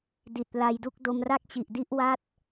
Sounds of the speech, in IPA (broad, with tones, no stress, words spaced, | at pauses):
di˨˩t̚la˧jdu˥˩k̚ do˧mra˥˩k̚t͡ɕi˨˩ʔdi˥˩ʔ wa˦˥t̚